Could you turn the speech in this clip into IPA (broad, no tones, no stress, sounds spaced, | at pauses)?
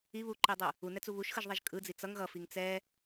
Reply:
i β u ǃ i dˤ u | u n ɛ t͡s u β u ʃ x ɯ ʒ ðˤ ɛ ʒ kʼ ɯ d͡z i t͡s ʌ ŋ ɣ ʌ f i ŋ t͡s ɛ